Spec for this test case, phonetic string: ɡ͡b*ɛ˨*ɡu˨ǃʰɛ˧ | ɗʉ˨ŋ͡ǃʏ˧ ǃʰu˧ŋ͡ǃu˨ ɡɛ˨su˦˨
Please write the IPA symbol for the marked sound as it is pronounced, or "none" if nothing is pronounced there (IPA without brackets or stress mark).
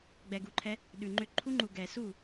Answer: ɛ˨